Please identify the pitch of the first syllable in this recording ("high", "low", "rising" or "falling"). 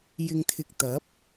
low